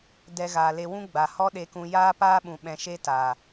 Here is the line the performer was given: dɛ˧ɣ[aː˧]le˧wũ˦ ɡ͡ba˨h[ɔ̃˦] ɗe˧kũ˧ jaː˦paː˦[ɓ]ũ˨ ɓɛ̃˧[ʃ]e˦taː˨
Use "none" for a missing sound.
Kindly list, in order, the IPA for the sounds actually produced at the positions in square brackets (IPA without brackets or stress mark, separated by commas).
aː˨, ɔ˦, ɓ, ʃ